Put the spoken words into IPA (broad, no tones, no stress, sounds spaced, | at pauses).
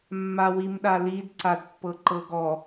mː a w i m ɗ a l i d ǀ a d pː ɤ ǃ ɤ ɡ ɔ